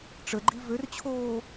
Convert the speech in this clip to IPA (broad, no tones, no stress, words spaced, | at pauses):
ʈ͡ʂəɡ͡ǃi vørt͡ɕʰoː